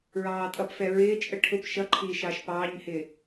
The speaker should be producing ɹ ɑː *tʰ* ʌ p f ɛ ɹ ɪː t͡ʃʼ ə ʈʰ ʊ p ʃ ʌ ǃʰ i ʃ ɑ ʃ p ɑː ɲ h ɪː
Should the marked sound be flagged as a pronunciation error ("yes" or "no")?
yes